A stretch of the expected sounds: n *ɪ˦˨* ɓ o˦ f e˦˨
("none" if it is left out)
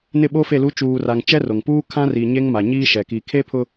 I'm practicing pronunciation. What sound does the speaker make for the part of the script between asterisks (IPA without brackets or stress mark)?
ɪ˦˨